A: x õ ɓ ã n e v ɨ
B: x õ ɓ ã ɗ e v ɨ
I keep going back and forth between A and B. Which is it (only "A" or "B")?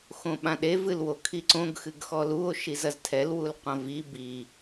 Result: B